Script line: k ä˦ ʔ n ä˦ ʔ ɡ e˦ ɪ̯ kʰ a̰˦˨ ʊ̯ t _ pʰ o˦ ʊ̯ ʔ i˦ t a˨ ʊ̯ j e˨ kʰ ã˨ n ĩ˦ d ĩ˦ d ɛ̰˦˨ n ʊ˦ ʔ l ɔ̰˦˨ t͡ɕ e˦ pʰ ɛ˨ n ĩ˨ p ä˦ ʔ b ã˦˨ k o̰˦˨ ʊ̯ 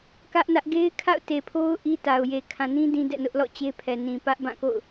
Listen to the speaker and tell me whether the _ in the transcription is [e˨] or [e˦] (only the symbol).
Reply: e˨